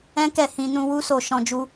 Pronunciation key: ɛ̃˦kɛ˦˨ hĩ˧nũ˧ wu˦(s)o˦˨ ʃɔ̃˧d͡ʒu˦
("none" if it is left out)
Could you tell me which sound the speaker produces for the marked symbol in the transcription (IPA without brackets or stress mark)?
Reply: s